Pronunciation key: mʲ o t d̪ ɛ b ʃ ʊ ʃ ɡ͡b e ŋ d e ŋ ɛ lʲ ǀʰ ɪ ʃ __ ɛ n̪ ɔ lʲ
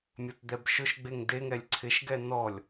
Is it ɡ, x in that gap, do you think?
ɡ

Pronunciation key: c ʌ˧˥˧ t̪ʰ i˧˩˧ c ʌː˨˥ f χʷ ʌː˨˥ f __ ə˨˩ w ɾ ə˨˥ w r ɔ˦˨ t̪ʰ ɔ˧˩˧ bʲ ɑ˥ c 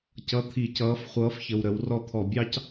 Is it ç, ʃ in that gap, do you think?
ç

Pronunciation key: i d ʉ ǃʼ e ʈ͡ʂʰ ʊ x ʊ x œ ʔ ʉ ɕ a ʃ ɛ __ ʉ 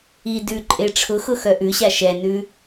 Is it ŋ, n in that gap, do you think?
n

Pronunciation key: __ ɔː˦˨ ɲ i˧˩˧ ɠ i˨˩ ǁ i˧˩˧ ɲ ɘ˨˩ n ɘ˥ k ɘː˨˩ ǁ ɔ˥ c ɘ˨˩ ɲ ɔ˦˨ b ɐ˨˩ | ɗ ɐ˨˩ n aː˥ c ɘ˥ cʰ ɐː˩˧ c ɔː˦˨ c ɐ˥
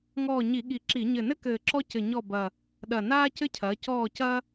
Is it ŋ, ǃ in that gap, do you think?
ŋ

